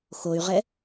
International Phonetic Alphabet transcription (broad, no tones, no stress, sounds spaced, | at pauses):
x o y̯ ʁ ɛ